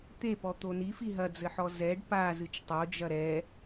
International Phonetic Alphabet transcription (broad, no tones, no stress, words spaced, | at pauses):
t̪epɔ t̪oni fiɦɐd͡zɘħɔ zɛɖ pa zɨt͡ʃtˤod͡ʒɐ ɾɛ